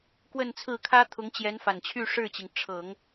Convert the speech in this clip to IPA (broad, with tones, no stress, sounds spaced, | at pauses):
k w ə˥˧ n t͡sʰ ɹ̩˥˩ kʰ ä˥ t̪ʰ ʊ˧˥ ŋ t͡ɕ j ɛ˧˥ n f a˨˩ n t͡ɕʰ y˥˧ ʂ ɻ̩˥˩ t͡ɕ i˩ ŋ ʈ͡ʂʰ ɤ˨˩˦ ŋ